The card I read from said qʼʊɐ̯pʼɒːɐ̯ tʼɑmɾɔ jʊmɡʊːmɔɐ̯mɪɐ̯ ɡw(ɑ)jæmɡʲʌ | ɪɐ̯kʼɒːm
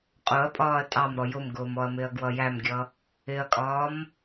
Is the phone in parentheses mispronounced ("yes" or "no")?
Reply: yes